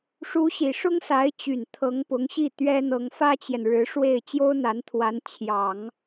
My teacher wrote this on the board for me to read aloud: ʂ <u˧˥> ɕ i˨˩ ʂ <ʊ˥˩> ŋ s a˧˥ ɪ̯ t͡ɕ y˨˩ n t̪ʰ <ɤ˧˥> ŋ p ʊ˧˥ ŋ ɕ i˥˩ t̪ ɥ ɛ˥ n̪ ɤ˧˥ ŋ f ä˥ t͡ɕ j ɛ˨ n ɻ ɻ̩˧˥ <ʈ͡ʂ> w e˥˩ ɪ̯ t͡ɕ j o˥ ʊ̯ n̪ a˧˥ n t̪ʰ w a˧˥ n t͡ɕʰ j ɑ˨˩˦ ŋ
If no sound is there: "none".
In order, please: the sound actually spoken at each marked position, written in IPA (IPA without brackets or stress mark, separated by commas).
u˧˥, ʊ˥, ɤ˧˥, ʂ